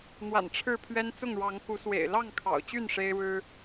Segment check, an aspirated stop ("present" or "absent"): present